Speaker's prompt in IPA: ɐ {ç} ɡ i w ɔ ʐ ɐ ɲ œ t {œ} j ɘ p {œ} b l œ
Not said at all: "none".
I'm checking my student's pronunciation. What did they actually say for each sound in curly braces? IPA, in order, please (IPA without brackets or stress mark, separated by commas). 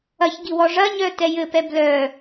ç, ɛ, ɛ